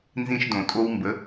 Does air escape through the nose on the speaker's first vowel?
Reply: yes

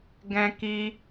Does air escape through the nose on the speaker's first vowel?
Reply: yes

